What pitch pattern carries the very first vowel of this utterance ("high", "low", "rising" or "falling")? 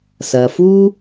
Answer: low